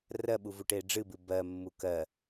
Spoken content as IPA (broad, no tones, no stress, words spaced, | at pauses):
rɜɓuvuʈe ɖ͡ʐɨbɨ bɜmːu kɜ